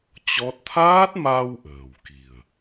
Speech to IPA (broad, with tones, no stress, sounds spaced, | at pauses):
t͡ɕ ɔ˦˥ t̚ t̪ʰ aː˦˥ t̚ m a˧ w ʔ ə̤ː˨˩ w k i̤˨˩ ə̯